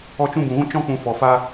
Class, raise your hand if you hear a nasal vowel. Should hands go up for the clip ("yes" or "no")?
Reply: yes